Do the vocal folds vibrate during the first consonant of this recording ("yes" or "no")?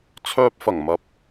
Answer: no